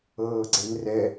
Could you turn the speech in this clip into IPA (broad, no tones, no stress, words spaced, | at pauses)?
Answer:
ɤːɡ͡ǀenrɛ